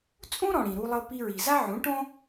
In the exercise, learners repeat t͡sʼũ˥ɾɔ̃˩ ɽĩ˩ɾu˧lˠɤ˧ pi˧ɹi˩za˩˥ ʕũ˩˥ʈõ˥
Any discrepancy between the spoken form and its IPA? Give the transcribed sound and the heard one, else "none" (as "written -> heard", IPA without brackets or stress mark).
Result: a˩˥ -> a˥